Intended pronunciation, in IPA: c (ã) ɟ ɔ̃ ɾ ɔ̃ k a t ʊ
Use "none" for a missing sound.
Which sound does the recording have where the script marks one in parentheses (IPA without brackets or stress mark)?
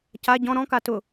a